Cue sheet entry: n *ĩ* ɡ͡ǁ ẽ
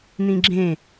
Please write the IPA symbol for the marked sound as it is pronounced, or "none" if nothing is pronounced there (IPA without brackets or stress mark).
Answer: ĩ